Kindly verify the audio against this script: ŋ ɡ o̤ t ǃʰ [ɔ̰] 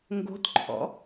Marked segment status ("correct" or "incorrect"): correct